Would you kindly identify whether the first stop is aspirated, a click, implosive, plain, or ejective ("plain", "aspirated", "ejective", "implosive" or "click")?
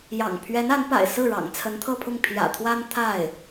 aspirated